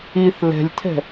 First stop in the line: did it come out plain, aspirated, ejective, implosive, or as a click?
aspirated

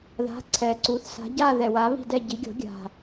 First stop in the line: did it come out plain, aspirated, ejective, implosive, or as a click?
click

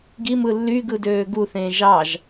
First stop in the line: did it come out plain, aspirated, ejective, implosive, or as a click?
plain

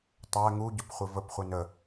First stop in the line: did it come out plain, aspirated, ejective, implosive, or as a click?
plain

